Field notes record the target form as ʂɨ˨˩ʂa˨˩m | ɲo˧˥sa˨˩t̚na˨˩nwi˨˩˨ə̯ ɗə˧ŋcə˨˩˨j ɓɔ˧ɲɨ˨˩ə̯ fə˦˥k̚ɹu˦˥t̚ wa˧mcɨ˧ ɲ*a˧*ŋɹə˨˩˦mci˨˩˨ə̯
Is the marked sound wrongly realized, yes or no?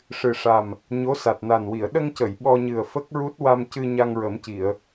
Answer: no